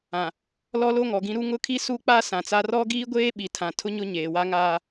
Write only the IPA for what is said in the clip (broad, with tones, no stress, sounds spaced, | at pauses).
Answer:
ã˨ | l ɔ˦ l o˦ ŋ ɔ˨ ɡ ĩ˦ ɾ u˦ ŋ ʊ˦ kʰ i˦ s u˦ k͡p a˦ s ã˨ t͡s a˦ r ɔ˦ ɡ iː˦ ɡʷ eː˦ ɓ i˨ tʰ ã˨ tʰ ʊ˦ ɲ ʊ˦ ɲ eː˨ w a˦ ŋ aː˦